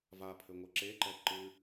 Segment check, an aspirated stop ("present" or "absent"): present